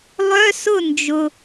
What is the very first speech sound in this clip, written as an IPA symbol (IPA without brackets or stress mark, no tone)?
lˠ